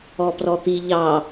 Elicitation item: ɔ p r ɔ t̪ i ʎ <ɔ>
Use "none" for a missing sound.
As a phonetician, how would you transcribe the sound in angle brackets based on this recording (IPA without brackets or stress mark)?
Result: ɑ